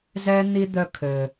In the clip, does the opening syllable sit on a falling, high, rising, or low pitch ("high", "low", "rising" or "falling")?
high